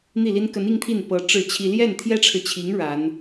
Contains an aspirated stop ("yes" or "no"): yes